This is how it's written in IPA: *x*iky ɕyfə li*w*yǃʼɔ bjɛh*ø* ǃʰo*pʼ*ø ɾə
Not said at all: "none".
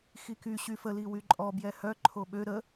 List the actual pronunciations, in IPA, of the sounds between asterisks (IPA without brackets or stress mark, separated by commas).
x, w, œ, ɓ